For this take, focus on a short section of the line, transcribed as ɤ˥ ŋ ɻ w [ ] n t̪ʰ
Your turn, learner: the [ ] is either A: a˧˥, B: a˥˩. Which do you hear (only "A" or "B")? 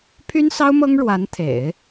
A